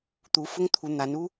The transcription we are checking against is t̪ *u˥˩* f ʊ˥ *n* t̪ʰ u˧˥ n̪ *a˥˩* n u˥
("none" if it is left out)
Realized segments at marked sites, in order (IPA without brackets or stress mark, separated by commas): u˧˥, ŋ, a˧˥